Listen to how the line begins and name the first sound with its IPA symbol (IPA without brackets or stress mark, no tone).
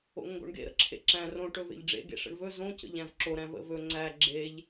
o̰